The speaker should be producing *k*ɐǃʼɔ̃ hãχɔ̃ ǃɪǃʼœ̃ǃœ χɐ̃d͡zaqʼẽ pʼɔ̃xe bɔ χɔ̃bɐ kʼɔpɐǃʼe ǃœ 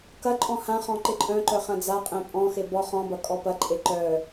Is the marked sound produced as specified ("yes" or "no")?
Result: yes